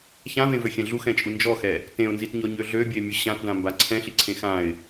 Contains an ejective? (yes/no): yes